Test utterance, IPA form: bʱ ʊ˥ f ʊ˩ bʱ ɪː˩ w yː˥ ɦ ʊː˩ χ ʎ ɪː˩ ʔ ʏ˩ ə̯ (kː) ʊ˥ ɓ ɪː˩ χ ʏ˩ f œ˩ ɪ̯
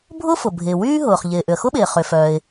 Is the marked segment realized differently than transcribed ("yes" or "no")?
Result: yes